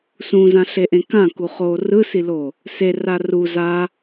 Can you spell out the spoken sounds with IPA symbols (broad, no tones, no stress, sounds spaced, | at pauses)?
s ũ z ã ɬ e ʔ ẽ k ã k u χ o r ɯ s i l o | s e r a r u z a